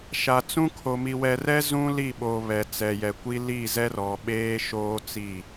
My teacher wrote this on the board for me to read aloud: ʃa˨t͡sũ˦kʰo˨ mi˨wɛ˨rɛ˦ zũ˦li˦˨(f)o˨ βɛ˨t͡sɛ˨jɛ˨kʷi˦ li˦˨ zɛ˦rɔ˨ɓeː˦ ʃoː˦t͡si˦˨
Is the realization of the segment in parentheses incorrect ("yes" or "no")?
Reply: yes